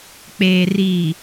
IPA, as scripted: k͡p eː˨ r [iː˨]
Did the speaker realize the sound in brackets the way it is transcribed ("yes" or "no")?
yes